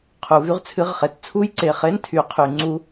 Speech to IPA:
qʰu˨˩˦vy˧˥˧ʁt͡sʰɨ˧˥˧ʁχe˨˩˦t t͡sʰu˦˥jǀe˩˧˩χe˧˥˧ntʰy˨˩˦ qʰy˨˩˦ŋ͡ǀu˦˥

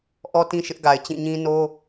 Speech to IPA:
ʔɔ˦tĩ˦ʃɪ˦ʔɡa˨ɪ̯ t͡ɕĩ˦˨ ɲĩ˦ no˦

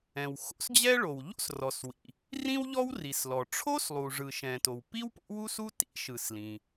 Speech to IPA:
ɛ̃˩w xo̰˥sd͡ʑɛ˥ɭo˩w ʎo̰˥srɔ˩swḭ˩ | rĩ˥wʎɔ˥wri˩slɔ˩ ʈ͡ʂʰo˥s lˠu˩ʐɯ˩ʃɛ̃˩ to˩wpi˥w po̰˥wu˥su˥ tḭ˥ʃɯ˩s lĩ˩

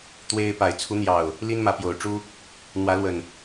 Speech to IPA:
t̪we˦ɪ̯ pa˨˩ɪ̯t͡sʰu˨˦n̪jɑ˨˩ʊ̯ | li˦nmä˨˦pjo˨˩ʊ̯ʈ͡ʂu˦ | n̪wä˨˦lwə˨˩n

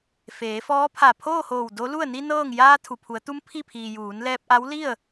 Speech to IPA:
feː˩˧fɔː˧˥ pʰa˧˩pʰoː˥˨hoː˧˩w do˧˥lu˥˨ə̯ ni˧ nɤː˥˨ŋ jaː˧ t̪ʰu˩pʰu˩˧ə̯t̪u˧˥m pʰi˥˨pʰiː˩ juː˩˧nlɛː˧p̚ʔa˧˥wli˥˨ə̯

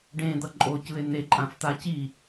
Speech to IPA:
ɖẽd̪ʌ ǃʼocɯe̯ n̪eǃʼãft̪a ci

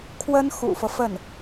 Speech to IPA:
kʰwə˥n xṵ˨˩fɤ˦ fə˥˩n

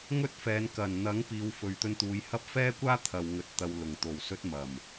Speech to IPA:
ŋɵ˥t̚fɛː˨˧n kɐ˨˩n n̪ɐ˨˥ŋ piː˨˧wfɵ˨ɥt̪ɵ˧n t̪uː˨˧jhɐ˥p̚ fɛː˥kʷaː˥ t̪ʰɐ˨w ŋɵ˨t̚ t̪ɐ˨wlʊ˨˩ŋ t̪o˨˩wsɵ˧t̚ mɐ˨˩m

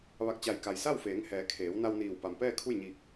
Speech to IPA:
ʋa˧˩k̚t͡ɕa˧˩jka˩j sa˥˨wfeː˩˧ŋhɛː˩˧kʰeː˩˧w na˧wniː˧˩w pa˩mpɛː˥˨kʰu˥˨jɲiː˧˩k̚

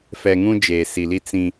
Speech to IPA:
fɛ˨ŋũ˦d͡ʒeː˨ si˨li˦ t͡sĩ˦

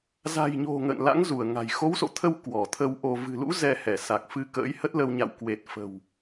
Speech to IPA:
za̤˨˩jɲo̤˨˩ ŋə̰ː˧˨nla̰˧˥ŋzu˧˩ə̯ŋa̤˨˩j xo˨˦wso̰˧˨t̪ʰə˧w kwɔ˧˩t̪ʰə˧wʔo˧ vɨ̤˨˩lṵ˧˥ zɛ˧hɛ˧˩ sa˨˩k̚fɨ˧kə̰ː˧˥j hə˦˥t̚lə˧w ɲa̰˧˨wkwe˨˩t̚fə̤˨˩w

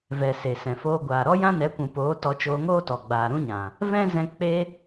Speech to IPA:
vɛ˨ se˨sɛ̃˨foː˧ ɡʷaː˨ɾɔ˦jã˦nɛ˨˦ kʷũ˨poː˨˦ tɔ˧t͡ʃoː˧ŋoː˦tɔ˨ ɡ͡baː˨ɾũ˦ɲã˨ | vɛ̃˦zɛ̃˧ k͡pe˧

